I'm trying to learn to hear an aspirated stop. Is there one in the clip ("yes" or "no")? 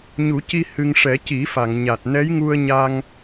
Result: no